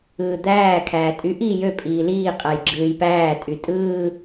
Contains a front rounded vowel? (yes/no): yes